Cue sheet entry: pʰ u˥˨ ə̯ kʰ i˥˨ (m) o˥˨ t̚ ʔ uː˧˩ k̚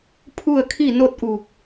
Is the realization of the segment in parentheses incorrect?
yes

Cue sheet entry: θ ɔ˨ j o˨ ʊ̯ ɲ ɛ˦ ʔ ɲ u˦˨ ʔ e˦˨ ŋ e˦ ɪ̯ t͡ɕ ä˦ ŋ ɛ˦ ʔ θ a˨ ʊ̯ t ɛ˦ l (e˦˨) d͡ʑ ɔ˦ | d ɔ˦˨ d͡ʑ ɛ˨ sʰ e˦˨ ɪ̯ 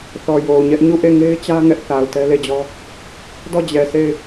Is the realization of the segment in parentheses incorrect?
no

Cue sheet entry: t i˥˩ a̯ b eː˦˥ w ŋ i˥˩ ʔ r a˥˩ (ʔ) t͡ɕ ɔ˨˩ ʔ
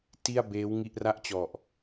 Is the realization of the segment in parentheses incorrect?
no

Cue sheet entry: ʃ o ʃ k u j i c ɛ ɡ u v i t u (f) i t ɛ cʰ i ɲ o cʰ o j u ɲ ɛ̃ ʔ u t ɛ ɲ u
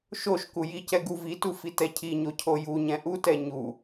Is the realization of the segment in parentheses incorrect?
no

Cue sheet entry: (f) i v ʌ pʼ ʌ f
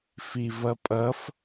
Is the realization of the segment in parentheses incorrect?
no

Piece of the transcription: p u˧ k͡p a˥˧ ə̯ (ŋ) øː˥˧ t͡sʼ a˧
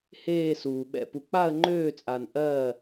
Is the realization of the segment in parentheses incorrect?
yes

